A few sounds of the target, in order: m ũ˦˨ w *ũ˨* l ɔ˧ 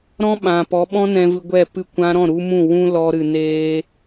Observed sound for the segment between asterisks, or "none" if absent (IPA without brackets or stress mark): ũ˦